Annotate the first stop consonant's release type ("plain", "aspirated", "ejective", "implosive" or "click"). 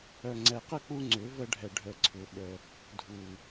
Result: click